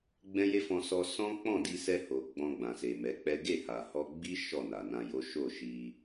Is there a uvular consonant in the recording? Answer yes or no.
no